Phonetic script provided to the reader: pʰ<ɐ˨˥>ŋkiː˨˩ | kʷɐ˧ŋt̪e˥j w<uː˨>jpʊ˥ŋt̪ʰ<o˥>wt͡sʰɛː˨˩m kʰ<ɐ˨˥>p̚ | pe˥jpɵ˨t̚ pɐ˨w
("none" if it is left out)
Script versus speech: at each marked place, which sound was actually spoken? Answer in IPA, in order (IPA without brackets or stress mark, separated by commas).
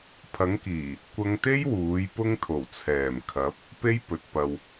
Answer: ɐ˨˥, uː˨˥, o˨˩, ɐ˨˥